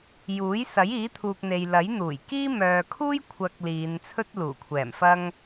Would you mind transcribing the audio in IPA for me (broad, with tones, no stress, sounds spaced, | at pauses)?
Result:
j uː˨˥ j s ɐ˨˥ j iː˨˥ t̪ʰ uː˨ k̚ n̪ e˨ j l ɐ˨˥ j n̪ uː˨˩ j k iː˥ m œː˨ kʰ uː˥ j kʷʰ ɐ˨ k̚ l iː˨˧ n t͡sʰ ɵ˥ t̚ l uː˨˩ kʷʰ ɛː˨˩ m f ɐ˥ ŋ